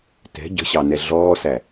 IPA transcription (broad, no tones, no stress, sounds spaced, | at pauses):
t ɛ̤ ɟ ə̤ ɕ ɑ n ɛ ɮ ɔː s æ